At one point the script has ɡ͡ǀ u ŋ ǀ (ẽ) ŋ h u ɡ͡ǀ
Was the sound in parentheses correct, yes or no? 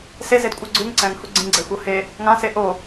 no